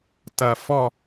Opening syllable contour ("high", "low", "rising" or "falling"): falling